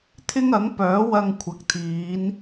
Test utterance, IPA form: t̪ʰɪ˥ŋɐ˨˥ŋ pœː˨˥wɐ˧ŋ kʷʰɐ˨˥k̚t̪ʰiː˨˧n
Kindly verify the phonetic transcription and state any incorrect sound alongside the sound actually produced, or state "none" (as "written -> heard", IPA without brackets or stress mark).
none